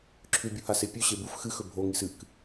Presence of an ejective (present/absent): absent